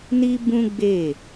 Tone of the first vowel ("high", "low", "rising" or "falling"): high